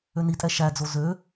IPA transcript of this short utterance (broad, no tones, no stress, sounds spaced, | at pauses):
ø n i tʼ ɛ ʃ æ d͡z o z ø